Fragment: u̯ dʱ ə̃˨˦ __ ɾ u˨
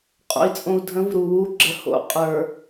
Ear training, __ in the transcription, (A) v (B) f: A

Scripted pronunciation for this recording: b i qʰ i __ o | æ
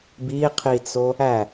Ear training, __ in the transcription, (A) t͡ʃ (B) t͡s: B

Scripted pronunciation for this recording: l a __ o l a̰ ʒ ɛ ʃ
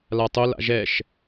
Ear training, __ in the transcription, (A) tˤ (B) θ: A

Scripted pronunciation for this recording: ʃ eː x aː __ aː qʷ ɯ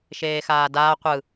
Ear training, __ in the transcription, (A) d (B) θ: A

